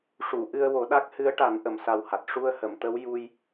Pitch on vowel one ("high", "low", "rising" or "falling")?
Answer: low